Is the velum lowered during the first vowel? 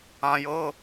yes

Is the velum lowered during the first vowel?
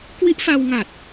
no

